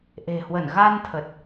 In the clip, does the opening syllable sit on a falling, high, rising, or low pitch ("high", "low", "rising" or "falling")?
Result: low